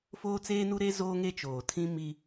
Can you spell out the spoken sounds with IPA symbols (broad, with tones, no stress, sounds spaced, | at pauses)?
f oː˦ t͡s eː˦ n u˦ ɾ e˦ z oː˦ ŋ e˦ t͡ʃ oː˨ tʰ ĩ˦ m i˦